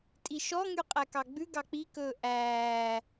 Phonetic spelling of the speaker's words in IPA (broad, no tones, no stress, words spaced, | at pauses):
tʼiʃɔŋy qʼækɑɡ͡bʉ ɡɑk͡pikɵː ʔæː